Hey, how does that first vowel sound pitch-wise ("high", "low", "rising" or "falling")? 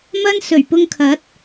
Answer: high